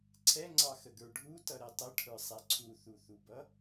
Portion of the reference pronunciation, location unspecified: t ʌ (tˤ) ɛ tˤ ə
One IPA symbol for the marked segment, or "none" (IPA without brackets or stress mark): ɾ